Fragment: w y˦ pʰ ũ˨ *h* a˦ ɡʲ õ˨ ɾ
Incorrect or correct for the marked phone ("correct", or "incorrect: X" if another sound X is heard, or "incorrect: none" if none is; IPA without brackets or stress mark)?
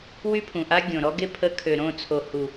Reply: incorrect: ʔ